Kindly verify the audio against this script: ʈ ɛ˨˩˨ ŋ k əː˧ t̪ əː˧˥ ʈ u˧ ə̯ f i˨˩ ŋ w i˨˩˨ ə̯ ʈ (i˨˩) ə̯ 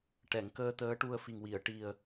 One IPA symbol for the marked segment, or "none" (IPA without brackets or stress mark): i˨˩